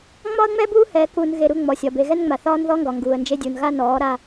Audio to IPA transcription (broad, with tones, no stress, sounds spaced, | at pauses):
ŋ͡m ɒ˦ ə̯ ŋ͡m ɛ˦ b uː˦ h ɛ˨˦ k u˨ n ɣ e˨ ɾ u˦˨ ŋ͡m ɔ˨ sʲ ɒ˨ b e˨ ɣ ɛ˦ n ŋ͡m a˨ θ ɒː˦ n ð ɔ˦ ŋ ɡ ɒ˨ ŋ ɡ uː˨ ə̯ n d͡ʒ e˦ dʲ u˨ n ɣ a˦ n ɔː˨˦ ɾ a˦